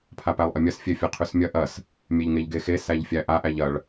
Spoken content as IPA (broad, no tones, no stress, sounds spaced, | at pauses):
pʰ a p æ lˠ ʔ ɐ mʲ ɐ s fʲ e fʲ ɐ qʰ ʉ s mʲ ɐ ʔ ɐ s | mʲ e ʎ ŋ e ʎ ɡ e x e s æ ʎ fʲ æ ʔ a ʔ æ ʎ ɐ ɭ